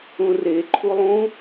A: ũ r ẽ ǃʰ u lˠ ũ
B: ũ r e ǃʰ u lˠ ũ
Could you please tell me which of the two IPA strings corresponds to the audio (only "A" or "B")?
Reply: B